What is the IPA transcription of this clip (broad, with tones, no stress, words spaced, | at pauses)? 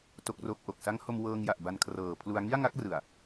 to˦˥k̚ro˦˥k̚ʔo˨˩k̚ sa˦˥ŋho˧mwɤː˧ŋja˨˩ʔ ba˧nkʰrɤː˨˩pʰlu˧a̯ ŋi˥˩a̯ŋa˦˥k̚rɯ˨˩a̯